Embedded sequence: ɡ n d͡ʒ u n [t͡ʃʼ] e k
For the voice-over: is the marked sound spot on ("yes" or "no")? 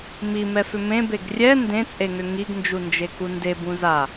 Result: no